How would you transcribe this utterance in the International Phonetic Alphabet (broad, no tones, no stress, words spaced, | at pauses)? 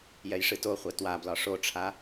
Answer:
jɛjʂɨtoχʷɛ twablɒ ʂoʈ͡ʂʰa